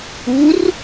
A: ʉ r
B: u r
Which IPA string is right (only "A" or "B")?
B